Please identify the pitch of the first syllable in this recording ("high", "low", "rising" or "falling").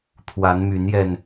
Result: rising